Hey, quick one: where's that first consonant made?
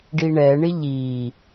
retroflex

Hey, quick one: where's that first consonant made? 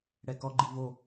retroflex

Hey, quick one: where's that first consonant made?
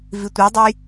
lips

